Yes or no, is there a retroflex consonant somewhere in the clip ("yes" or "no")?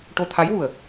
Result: yes